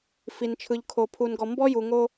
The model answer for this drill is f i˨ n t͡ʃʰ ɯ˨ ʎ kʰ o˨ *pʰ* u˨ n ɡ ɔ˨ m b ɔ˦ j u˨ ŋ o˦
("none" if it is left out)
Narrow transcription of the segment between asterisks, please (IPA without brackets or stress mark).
pʰ